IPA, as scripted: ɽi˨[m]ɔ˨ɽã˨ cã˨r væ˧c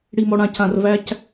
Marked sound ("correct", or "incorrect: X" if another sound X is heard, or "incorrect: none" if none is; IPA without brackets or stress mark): correct